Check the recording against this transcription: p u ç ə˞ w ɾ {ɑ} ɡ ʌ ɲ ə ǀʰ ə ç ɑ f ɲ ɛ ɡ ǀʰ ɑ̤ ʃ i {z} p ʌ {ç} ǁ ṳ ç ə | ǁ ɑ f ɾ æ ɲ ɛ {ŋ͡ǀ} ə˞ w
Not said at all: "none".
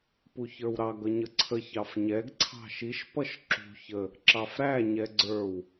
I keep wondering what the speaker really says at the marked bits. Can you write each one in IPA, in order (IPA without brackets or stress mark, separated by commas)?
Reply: ɑ, ʃ, ʃ, ɡ͡ǀ